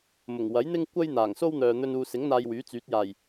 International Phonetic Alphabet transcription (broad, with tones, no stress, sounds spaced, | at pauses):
m ʊ˨˩ ŋ w ɐ˨˥ j n̪ ɪ˥ ŋ kʷ ɐ˥ j n̪ aː˨˩ ŋ s o˥ w n̪ œː˨ n̪ ɵ˧ n uː˨ s ɪ˨˥ ŋ n̪ aː˧ j w yː˨˥ t͡s yː˨˥ t̚ j aː˨˩ j